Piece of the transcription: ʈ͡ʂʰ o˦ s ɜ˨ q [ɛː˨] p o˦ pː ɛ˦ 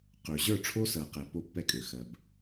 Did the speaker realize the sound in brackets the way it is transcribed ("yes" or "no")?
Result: no